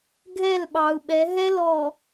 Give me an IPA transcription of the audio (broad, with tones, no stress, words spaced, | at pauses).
ɡʱɛ˦˨lɓɑ˨u̯ɓɛ˨˦ ɦɛ˦ lɔ˨